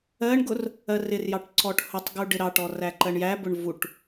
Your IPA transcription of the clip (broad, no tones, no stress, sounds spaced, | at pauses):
ɜ ɳ ɡ ʊ r | ɜ r ɪ r j ɑ ʈ ǀ ɔ ʈ h ʊ tˤ ɡ u ɖ ɪ ɾ ɑ ʈ ɔ r æ ǃ ɜ ɳ j æ b ʊ ɳ v u ʈ